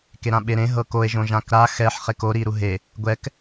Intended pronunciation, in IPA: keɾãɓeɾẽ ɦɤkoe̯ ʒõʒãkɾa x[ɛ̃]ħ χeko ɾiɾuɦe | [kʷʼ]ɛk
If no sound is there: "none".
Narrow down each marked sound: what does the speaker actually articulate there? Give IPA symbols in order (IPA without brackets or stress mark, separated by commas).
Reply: ɛ, ɡʷ